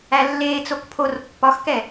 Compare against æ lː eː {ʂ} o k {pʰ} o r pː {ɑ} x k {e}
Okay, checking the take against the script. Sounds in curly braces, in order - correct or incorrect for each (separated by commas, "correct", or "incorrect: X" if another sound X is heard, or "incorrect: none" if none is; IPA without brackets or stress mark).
incorrect: t͡s, correct, incorrect: ɒ, incorrect: ɛ